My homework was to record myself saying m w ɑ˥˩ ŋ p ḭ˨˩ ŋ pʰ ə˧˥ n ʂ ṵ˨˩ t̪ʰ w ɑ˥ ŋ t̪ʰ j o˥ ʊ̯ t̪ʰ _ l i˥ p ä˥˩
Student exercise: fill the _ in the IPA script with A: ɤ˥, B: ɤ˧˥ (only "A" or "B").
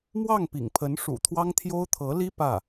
B